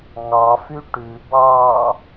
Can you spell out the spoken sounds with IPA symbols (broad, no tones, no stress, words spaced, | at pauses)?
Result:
ŋɑfy ʈʉbɑː